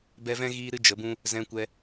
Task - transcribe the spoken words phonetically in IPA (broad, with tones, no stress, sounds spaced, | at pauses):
b ɛ˧ v ɛ̃˦ ɣ iː˦ ɾ ɨ˦ d͡ʒ ə˨˦ b ũ˦ | z ɛ̃˧ kʷ ɛ˧